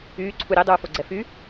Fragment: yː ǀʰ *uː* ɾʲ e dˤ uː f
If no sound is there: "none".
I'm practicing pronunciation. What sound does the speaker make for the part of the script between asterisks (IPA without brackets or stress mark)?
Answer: u